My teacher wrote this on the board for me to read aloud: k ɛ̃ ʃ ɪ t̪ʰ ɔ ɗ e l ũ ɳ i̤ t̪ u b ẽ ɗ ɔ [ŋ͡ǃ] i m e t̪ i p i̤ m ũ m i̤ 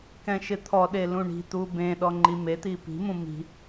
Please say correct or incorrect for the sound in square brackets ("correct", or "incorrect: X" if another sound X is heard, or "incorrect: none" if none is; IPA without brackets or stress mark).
correct